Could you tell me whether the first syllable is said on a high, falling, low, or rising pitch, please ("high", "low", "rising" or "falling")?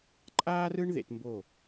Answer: high